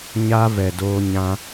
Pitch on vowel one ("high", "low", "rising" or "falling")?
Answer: high